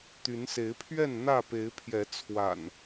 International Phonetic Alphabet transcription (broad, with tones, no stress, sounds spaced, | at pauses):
t̪ y˨˦ n s e˨˦ ɪ̯ pʰ ɥ ɛ˥˨ n n̪ ä˥˨ p e˨˦ ɪ̯ pʰ j ɛ˨˦ t͡sʰ w a̰˨˩ n